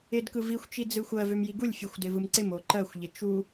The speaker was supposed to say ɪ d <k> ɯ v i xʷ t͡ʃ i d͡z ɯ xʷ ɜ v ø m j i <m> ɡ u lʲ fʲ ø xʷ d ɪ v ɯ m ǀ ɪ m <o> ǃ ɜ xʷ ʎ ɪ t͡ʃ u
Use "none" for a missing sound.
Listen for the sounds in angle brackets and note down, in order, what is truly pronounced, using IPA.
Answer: k, none, o

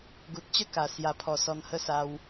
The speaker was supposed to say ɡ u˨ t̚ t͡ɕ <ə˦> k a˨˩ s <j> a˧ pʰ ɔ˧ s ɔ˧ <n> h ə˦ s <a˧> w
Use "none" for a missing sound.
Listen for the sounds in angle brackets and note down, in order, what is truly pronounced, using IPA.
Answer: ə˥˧, j, n, a˧

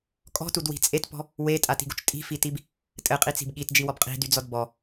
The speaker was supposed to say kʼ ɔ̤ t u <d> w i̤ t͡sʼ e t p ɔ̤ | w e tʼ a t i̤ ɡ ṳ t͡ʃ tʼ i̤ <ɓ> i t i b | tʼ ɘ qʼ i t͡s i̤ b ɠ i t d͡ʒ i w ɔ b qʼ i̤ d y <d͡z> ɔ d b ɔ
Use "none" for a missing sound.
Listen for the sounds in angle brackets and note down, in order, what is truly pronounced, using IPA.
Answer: d, f, d͡z

